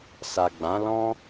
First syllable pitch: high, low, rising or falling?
low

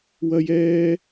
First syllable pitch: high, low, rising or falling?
high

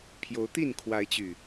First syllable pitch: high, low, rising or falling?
rising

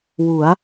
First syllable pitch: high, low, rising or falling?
rising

